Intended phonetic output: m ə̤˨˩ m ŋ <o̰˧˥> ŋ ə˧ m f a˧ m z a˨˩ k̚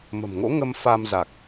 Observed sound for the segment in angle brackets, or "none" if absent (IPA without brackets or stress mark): o̰˧˥